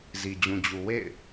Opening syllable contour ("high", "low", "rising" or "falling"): low